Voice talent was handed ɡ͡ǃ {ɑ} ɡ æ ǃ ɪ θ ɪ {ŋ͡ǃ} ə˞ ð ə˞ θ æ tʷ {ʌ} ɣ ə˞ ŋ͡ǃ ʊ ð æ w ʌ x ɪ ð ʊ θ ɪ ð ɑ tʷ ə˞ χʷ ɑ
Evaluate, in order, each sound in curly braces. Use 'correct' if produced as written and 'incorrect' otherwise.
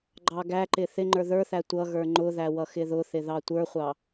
correct, correct, correct

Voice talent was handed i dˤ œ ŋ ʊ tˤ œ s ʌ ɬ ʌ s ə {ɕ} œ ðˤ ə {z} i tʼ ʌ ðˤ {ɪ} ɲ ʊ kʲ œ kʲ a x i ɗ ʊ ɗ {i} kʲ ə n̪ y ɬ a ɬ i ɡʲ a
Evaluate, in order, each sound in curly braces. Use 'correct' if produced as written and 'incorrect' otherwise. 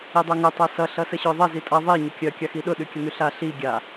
correct, correct, incorrect: i, incorrect: y

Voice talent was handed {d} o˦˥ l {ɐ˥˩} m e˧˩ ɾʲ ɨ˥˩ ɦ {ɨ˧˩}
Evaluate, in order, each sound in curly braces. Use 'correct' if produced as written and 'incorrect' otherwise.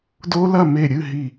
correct, correct, incorrect: i˧˩

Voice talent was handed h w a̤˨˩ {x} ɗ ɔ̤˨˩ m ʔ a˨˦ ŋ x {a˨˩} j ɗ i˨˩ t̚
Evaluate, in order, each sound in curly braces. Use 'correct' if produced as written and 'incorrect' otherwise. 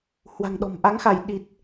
incorrect: ŋ, incorrect: a˧˩

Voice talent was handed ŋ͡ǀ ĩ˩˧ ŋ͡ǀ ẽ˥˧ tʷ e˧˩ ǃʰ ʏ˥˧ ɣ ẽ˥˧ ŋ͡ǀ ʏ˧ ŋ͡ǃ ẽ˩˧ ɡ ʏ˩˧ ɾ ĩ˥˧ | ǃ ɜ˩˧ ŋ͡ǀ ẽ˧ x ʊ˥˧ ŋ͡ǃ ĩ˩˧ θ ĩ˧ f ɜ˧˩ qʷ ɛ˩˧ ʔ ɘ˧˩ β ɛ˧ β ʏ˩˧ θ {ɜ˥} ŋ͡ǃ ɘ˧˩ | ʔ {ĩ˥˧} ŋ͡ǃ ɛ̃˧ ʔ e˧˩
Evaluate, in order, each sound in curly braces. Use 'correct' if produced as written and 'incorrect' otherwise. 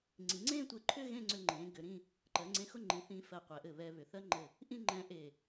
correct, correct

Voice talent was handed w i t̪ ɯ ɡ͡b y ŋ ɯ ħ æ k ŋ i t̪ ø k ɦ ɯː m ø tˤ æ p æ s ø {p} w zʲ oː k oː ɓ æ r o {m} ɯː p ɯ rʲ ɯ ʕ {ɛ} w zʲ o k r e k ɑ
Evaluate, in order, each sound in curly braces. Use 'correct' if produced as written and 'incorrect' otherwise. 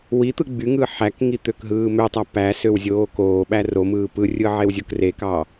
incorrect: none, correct, incorrect: e

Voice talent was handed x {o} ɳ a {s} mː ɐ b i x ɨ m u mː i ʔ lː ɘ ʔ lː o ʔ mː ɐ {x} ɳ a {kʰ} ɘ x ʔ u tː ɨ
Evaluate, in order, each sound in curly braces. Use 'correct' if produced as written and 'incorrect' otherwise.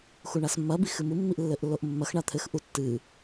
incorrect: u, correct, correct, incorrect: t̪ʰ

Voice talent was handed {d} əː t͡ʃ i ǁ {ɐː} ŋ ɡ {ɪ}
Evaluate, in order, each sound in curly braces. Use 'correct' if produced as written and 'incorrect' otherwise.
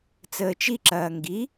incorrect: t͡s, correct, incorrect: i

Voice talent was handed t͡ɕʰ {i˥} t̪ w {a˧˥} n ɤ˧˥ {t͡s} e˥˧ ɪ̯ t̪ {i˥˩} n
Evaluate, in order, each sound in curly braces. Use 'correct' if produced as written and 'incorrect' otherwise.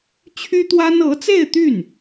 incorrect: y˥, incorrect: a˥, correct, incorrect: y˥˩

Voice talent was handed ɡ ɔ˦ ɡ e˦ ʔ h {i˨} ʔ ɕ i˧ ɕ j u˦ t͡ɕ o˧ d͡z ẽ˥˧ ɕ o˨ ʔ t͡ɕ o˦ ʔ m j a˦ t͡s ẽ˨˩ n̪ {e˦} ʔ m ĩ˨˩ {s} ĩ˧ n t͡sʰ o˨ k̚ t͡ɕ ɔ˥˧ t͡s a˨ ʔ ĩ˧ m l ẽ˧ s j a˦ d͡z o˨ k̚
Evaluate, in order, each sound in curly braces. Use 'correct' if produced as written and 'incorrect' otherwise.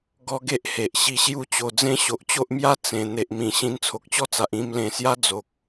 incorrect: e˨, incorrect: e˨, incorrect: ɕ

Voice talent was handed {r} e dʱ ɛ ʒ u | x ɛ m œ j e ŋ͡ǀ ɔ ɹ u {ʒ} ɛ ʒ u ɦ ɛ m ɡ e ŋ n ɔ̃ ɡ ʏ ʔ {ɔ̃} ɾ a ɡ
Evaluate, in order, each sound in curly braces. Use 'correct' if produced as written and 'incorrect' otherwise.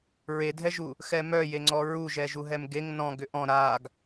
incorrect: ɹ, correct, correct

